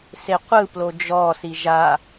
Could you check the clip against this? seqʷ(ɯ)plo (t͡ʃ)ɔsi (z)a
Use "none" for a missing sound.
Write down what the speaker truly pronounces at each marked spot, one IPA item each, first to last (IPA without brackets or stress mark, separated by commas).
ɯ, d͡ʒ, ʒ